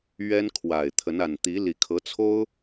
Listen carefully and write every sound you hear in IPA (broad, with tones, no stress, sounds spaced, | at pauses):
ɥ ɛ˦ n kʰ w a˨˩ ɪ̯ t̪ʰ ə˨˦ n a˨˩ n t̪ i˨˦ l i˨˩ kʰ ɤ˨˦ t͡sʰ o˦ ʊ̯